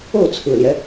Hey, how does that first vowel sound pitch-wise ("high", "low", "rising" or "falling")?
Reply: falling